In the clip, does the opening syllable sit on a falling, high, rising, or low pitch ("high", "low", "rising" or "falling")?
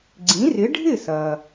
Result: rising